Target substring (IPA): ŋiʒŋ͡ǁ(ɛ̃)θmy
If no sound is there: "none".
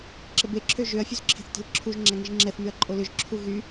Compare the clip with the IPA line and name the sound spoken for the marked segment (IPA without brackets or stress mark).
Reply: ɛ